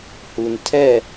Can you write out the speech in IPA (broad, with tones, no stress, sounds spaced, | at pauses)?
h u˨ n tʰ ɛ˦˨